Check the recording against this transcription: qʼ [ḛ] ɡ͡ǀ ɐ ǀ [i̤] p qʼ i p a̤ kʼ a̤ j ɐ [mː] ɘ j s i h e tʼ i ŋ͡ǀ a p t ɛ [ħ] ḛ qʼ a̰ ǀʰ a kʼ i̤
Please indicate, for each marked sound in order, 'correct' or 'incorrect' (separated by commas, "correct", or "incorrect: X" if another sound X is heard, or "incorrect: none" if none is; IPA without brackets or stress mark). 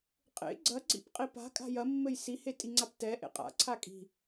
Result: correct, incorrect: ḭ, correct, incorrect: ʔ